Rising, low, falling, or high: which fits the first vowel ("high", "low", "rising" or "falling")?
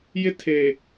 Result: high